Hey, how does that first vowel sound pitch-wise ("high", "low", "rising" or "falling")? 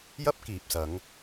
high